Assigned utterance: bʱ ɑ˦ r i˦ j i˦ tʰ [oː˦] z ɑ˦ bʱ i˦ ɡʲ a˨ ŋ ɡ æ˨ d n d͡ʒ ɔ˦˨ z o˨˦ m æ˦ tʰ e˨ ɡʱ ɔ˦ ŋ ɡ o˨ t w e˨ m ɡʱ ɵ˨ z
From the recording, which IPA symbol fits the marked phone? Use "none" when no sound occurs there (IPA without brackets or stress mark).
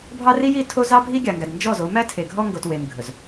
o˦